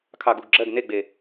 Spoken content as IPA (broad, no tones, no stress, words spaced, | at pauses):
kʰɑɡuɡɡ͡ǁɜɡ neɡ͡be